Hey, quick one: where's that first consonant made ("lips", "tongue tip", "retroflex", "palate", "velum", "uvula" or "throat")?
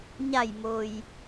palate